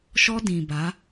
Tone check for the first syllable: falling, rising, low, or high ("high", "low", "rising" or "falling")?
high